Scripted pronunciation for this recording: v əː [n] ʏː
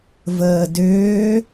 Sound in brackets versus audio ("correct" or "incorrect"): incorrect